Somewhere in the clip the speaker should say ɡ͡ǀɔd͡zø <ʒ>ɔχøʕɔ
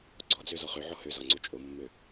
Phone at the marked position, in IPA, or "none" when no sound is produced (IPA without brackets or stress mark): z